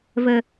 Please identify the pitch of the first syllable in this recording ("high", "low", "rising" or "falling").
low